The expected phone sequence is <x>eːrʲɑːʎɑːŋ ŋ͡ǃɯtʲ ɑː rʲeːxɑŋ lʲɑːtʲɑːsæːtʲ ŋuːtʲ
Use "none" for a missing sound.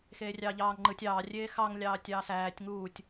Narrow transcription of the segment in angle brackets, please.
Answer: x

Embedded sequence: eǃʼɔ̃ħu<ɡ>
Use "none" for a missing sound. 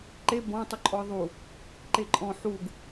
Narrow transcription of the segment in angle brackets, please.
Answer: ɡ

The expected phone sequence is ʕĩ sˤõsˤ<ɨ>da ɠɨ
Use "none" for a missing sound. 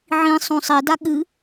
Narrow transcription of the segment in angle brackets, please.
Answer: i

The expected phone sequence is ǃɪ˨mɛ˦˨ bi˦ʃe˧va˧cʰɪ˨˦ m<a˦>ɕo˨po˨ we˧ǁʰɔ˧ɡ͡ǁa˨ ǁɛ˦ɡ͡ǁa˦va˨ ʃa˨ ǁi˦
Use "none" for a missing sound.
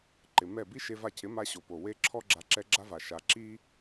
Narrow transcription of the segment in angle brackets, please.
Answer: a˦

